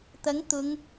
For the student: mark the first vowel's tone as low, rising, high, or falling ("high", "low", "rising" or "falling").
rising